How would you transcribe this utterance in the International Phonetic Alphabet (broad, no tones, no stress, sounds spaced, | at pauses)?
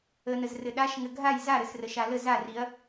ə n ə z r ɘ ɗ a ʃ ŋ ɘ ɡʱ a j z a ɾ ɘ s r ə ʃ a l ə z a r i ɐ̯